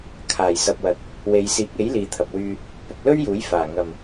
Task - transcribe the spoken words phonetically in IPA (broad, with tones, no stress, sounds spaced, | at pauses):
kʰ aː˨˩ j s ɐ˨ p̚ w ɐ˨˥ t̚ | w e˨˧ j s iː˨˥ k̚ e˨˥ j l iː˨ t̪ʰ ɐ˨ p̚ w yː˧ | p ʊ˨ k̚ l ɵ˥ ɥ j uː˨˥ j f aː˨˩ ŋ ɐ˨˩ m